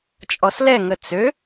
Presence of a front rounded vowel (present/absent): present